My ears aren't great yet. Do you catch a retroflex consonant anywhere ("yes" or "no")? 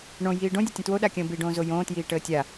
yes